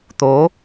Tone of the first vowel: rising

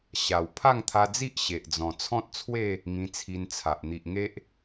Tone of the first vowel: low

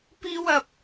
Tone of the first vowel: high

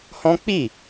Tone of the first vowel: high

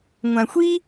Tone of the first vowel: low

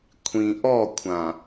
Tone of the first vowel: low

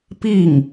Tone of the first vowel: falling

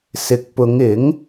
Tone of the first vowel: low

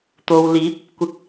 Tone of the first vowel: low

